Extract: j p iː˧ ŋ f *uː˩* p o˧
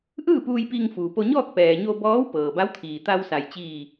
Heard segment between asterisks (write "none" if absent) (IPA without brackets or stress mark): uː˩